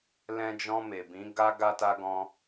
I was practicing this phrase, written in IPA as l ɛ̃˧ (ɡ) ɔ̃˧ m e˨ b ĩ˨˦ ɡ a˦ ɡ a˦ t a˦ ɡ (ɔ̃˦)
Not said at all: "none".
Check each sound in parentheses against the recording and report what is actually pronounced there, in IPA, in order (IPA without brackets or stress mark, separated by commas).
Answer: d͡ʒ, ɔ̃˦